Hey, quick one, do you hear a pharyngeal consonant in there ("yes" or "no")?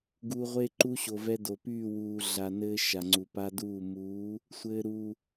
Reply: no